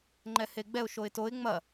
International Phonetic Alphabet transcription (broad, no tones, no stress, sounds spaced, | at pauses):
ŋ͡ǃ ɛ h e ɡ͡b ɛ ʊ̯ ʃ o ɪ̯ t o ɪ̯ ŋ͡m ɐ